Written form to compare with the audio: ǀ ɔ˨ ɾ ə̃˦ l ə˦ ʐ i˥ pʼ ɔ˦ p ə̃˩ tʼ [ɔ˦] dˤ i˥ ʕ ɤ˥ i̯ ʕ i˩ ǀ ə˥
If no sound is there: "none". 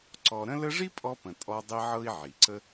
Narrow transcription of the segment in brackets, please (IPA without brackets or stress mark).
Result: ɔ˦